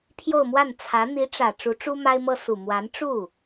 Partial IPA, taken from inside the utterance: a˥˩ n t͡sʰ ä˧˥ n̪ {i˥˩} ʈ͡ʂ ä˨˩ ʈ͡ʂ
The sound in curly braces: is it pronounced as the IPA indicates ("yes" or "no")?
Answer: no